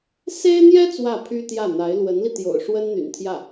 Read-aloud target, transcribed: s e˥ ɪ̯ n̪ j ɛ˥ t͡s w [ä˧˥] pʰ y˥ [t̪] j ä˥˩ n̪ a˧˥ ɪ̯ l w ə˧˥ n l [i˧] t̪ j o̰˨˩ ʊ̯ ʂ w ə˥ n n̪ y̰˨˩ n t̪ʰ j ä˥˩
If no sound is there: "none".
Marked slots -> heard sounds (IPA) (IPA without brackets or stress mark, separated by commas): ä˥˩, t̪, i˧